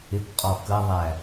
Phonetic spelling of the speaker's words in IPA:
ɪ k qʼ ɔ k ə ðˤ æ

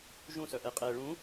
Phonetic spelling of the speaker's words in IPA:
ʒ ũ s œ ʔ ɛ qʼ ɛ ɭ ũ

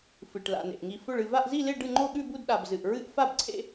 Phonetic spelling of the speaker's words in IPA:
f ɨ˨ ʈ l a̰˨ n ḛ˨ ʔ ŋ i˨ f ɵ˥˧ ɭ ɨ˥˧ v a˥˧ ʔ z i˥˧ l e˥˧ ɖ ɨ˥˧ ŋ͡ǃ o˥˧ ɠ ʉ˥˧ b u˥˧ d ɗ a˨ b z ɨ˨ ʔ ɹ ɨ˥˧ ʔ f a˥˧ b ǀʰ ḛ˥˧

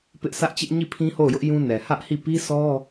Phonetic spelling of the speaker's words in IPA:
p ɪ˦ ʔ sʰ ä˦ ʔ t͡ɕ ɪ˦ ʔ ɲ i˦˨ pʰ ĩ˦ h o˦˨ ʊ̯ j ʊ˦ ʔ j ũ˦ n ɛ˨ h ä˦ ʔ h i˦˨ p i˦ sʰ ɔ˦

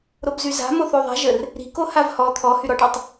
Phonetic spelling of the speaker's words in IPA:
ɾ o b z y z a̤ m o θ o ðˤ a̤ ʒ ə r | ɾ i̤ k o h a v h ɔ t̪ʰ ɔ h y ɾ ɔ ʈ o tˤ

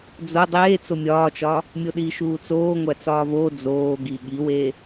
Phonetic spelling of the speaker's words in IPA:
d͡z o dˤ eː t͡s o mʲ ɒː t͡ʃ ɒː | mʲ o ɗ iː ʃ uː t͡s oː ŋʷ æ t͡s ɒː v oː d͡z oː ɡ i ɠ i w eː

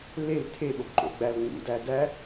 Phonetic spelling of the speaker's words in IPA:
l e l tʰ e ɓ o b ǃ o̰ ɡ͡b æ l ŋ͡m ṵ d æ d æ

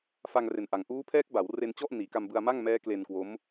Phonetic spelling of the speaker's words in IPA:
f a˧ ŋ r e˨˩ n ʔ a˨˩ ŋ ʔ uː˦˥ pʰ ɛː˦˥ k̚ b a˩˦ w r e˧ n t͡ɕ ɔ˥˩ ʔ n iː˩˦ k a˧ m b ɯ˧ a̯ m a˥˩ ŋ m ɛː˦˥ k l e˧ n k w o˦˥ m

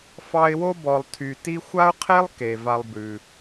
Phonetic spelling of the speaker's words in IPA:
f ɑ˦ ɪ̯ w o˥ b ɔ˨ lˠ tʰ y˨ t i˦ xʷ a˥ ʊ̯ qʰ e˥ lˠ k e˩ v a˨ lˠ b ʉ˩

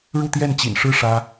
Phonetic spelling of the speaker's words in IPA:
ɻ u˥˧ t̪ j ɛ˥˩ n t͡ɕ ḭ˨˩ n ʂ ɻ̩˥˩ ʂ ä˥

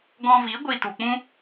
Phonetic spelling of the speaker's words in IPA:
ɡ ɔ̃˧ v i˨˦ ɡʷ i˧ t u˨ k͡p ũ˦

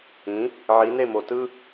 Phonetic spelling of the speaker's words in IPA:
ĩ˩˥ | ʕ i˩˥ n e˥˩ m o˩ t ɯ˥

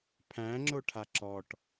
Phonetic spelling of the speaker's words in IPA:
pʰ æ̃ ŋ͡ǁ o ʈʰ a ǁ ɔ ʈ

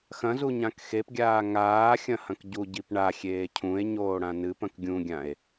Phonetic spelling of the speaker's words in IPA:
x ɐ̃ z u ɲ ã k x e p ɡʲ aː ŋ aː xʲ ɐ̃ h ɐ̃ k ɟ u ɟ i p ɳ a xʲ eː cʰ ũ e̯ ɲ oː ɽ ã n ɨ p ɐ̃ k ɡʲ ũ ɡʲ ã e̯

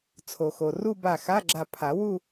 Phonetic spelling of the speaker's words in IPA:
t͡sʰ o˩ x o˩ r u˥˧ b a˧˩ x a˧˥˧ ɡ͡ǁ a˧˩ pʰ a˨˩˦ w u˥˧

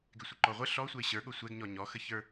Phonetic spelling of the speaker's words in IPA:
ɡ ɪ sʷ ə ǃ ɔ ʁʷ ə ɬ ɔ sʷ ə ɪ̯ ɕ ə˞ ɠ o sʷ ɛ ɡ ɲ ɔ ɲ ɔ x ə ç ə˞

